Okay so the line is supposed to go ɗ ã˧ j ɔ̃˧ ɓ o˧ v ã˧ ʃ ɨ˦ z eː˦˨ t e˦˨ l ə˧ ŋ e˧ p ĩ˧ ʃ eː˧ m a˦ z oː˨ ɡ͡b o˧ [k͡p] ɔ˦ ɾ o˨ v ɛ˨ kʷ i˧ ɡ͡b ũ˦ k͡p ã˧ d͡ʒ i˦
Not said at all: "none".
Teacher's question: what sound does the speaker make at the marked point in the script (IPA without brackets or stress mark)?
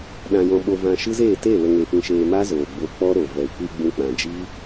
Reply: k͡p